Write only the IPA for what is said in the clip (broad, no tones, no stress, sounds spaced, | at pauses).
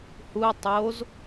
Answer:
h u ɐ̯ tˤ o z